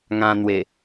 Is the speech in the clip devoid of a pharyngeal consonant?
yes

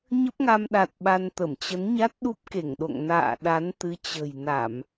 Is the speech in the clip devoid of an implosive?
no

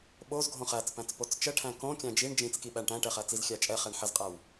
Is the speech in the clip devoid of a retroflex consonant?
no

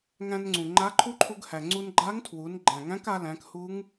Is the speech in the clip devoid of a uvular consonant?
yes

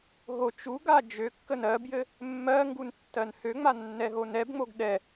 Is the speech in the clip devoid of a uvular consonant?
yes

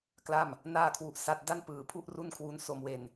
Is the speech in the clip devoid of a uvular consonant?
yes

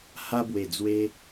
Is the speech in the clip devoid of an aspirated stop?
yes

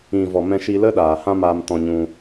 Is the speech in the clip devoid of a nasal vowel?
no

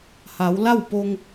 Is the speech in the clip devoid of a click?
yes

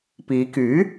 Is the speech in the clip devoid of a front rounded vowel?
no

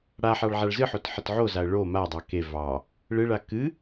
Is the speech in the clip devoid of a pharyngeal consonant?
no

